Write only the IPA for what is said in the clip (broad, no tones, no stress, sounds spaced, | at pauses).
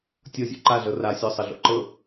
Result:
tʲ ɤ zʲ o̰ ǃ a ɮ ɤ r a sʲ ɔ sˤ ə ɮ o̰ ǃ ɤ